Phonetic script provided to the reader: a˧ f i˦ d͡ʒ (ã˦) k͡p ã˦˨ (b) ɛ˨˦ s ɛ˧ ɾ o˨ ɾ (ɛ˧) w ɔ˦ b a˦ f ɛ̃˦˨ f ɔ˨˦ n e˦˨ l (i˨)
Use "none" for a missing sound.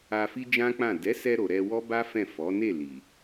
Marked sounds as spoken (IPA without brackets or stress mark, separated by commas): ã˦, d, ɛ˧, i˨